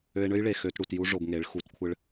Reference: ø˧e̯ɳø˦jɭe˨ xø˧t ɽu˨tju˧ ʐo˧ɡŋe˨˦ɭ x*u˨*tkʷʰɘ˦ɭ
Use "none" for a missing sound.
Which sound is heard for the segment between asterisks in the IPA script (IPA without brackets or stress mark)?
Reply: u˨˦